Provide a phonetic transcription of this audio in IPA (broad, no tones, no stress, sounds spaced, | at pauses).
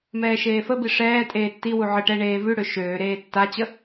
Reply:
m ɛː ʃ eː f ə b i ʂ ɛː tʼ eː tː i w u ʕ ə ʈ ɛ ɳ eː v ʉ ɽ ø ʃ øː ɾ eː tː a t͡ɕ ə